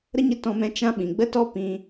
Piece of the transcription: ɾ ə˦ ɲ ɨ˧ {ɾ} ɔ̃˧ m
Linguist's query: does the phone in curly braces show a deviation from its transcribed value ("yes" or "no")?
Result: yes